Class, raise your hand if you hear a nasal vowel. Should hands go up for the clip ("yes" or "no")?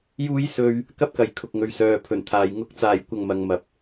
no